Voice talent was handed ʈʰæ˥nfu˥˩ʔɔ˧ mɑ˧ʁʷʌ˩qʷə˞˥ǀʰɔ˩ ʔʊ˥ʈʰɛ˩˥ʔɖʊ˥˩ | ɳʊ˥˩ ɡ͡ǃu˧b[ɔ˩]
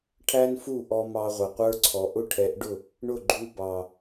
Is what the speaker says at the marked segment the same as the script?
no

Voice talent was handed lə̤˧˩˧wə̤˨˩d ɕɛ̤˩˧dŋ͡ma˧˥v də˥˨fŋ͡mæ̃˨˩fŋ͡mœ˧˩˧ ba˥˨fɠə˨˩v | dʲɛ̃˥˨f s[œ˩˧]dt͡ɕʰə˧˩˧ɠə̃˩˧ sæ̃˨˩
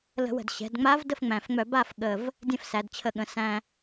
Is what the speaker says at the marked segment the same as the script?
no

